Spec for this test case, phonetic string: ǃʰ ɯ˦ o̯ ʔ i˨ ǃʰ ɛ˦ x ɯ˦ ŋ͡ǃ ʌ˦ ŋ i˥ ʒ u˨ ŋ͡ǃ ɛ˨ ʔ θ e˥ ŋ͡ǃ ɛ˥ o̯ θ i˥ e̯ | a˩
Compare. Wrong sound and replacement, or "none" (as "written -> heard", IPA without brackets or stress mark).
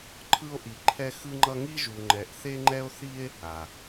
none